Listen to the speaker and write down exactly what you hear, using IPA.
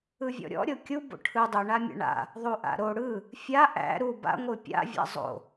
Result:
ɯ vʲ ɔ̰ ɾʲ ɔ̰ ɾʲ o kʲ u b o̰ ʈʰ ɯ dˤ ɯ ɳ a mʲ a̰ ɳ a̰ | ðˤ u ʔ a̰ ɾ o ɽ ɯ | fʲ a ʔ æ̰ ɾ u b a̰ ŋʷ ɯ pʲ a̰ vʲ a̰ zˤ o̰

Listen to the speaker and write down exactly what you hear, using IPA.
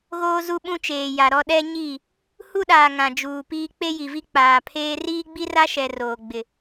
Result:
ɣ oː˦ z u˦ ɓ ũ˦ t͡ʃ eː˨ j a˨ ɾ ɔ˦ ɗ ɛ˦ ɲ i˦˨ | h u˦ ɗ aː˨ ŋ ã˨ d͡ʒ uː˨ p iː˦ k͡p e˦ j i˨ v i˦ k͡p aː˨ pʰ eː˦ r iː˦ ɡ͡b i˦ r a˦ ʃ ɛ˨ r oː˨ ɡ͡b ɪ˨

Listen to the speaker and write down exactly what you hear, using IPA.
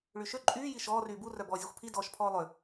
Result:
ɭ y ʃ ø ǃʼ yː j i ʃ ɔː r yː b u r œ b ɔː zʲ o xʷ pʰ i d ɔː ʃ pʰ ɔː lˠ ʏ

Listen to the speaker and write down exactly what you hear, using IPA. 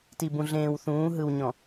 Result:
t i˨ b ũ˨ ɮ ẽː˨ w θ ũː˨˦ ɦ ɯ˨ w ɲ ɔ̃˨

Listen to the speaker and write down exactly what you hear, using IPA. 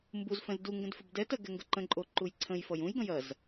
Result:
m b u z f ɛ̃ z d u ŋ ɡ ə̃ d f ʏ b d ɛ t ɐ ɡ ɛ ŋ ɡ ə ǃ ə̃ ǃʼ o ǃ u j ǀʰ ə̃ j f ʌ j ũ j ɡ ɐ̃ j ɐ z

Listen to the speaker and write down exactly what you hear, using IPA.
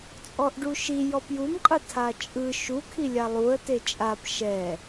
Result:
t͡sʼ ɔ ʔ ɖ u ʃ i j ɔ p j u m qʼ ɯ tʰ a t͡ʃʼ ɯ ʃ u kʰ i lʲ a lˠ u ə̯ t e t͡ʃʼ a p ʃ ɛ

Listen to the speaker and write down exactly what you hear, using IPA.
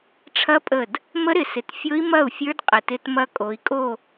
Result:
ʈ͡ʂʰ ɐ˦˥ pʼ ə˧˩ d | m ə˦˥ ɾ ɪ˨˦ s ɪ˨˦ t fʲ o˦˥ i̯ m ɐ˥˨ u̯ fʲ ə˞˦˥ d qʼ ɪ˧˩ t ɪ˦˥ t m ɐ˦˥ kʼ o˨˦ i̯ kʼ o˥˨

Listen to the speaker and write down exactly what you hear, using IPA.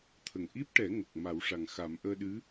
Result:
t̪ʰ ə˨˩ ŋ ʔ i˦˥ p̚ ʈ ɛ˨˩˦ ŋ o˨˩ k̚ m a˨˩˦ w ʂ a˨˩ ŋ x a˨˩˦ m ʔ əː˧ ɗ ɨ˧˥

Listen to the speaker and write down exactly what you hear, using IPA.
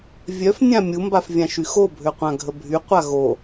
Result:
vʲ œ f nʲ ã mʲ u m b a f vʲ ã ʃ y x o bʱ ø qʷ ã ɡʱ ə bʱ y qʷ a ɣ o

